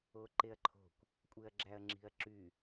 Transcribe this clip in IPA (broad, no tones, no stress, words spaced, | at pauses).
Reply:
oǃeɐ̯ǃʰo̤kʷ | kʷʼeɐ̯ɡ͡ǁæɐ̯ŋ͡ǁi̤ɐ̯ǁy